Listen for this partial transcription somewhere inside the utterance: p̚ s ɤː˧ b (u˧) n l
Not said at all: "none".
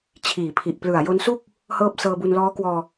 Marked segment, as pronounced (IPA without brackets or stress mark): u˧